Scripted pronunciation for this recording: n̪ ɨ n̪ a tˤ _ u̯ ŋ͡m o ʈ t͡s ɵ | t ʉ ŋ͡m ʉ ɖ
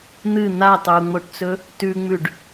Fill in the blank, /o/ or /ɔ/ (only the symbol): o